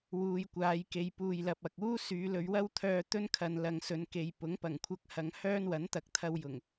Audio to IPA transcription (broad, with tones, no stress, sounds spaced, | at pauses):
w uː˧ j kʷ aː˨˧ j k e˨˧ j p uː˨ j l ɐ˨ p̚ ɐ˨ k̚ uː˥ s yː˨˧ l ɵ˨˧ ɥ w ɐ˥ w t̪ʰ œː˧ t̪ ɵ˥ n kʰ ɐ˨˧ n l ɐ˨˧ ŋ s ɵ˨˧ n k e˨ j p ʊ˨˥ ŋ p ɐ˨˩ ŋ kʷʰ ɐ˧ k̚ h ɐ˨˧ ŋ h œː˥ n w ɐ˨˥ n t̪ ɐ˨ k̚ t̪ʰ ɐ˧ w j ʊ˨˩ ŋ